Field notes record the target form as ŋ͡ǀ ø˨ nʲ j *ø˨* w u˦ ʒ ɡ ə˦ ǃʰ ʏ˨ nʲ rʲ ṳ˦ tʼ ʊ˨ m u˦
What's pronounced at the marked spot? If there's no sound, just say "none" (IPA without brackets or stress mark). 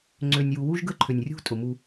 u˨